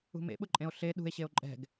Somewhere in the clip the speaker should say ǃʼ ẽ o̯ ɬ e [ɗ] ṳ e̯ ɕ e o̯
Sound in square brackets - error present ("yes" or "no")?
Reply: no